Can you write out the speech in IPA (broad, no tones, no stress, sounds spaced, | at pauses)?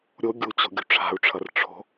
ɾʲ o ɡʲ u t͡ɕ o̤ ɡʲ ṳ ʈ͡ʂʰ a̤ u̯ ʈ͡ʂʰ ʌ r ʈ͡ʂʰ o̤